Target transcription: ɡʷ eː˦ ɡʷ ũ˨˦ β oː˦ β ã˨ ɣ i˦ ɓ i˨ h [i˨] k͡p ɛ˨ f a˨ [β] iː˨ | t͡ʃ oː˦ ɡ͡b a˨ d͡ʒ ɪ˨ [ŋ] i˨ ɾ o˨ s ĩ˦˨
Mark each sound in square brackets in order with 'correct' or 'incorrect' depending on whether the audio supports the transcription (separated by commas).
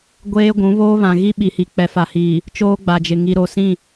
correct, incorrect, correct